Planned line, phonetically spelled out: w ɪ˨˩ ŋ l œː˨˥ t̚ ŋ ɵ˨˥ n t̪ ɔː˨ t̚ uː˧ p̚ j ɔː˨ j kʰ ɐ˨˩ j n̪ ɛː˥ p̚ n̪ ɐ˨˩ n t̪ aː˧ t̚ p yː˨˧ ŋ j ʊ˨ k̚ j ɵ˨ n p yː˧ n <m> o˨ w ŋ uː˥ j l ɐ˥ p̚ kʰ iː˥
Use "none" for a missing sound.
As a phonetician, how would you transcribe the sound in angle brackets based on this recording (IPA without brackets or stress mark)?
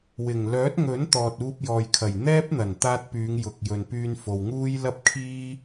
f